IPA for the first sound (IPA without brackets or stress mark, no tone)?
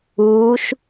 uː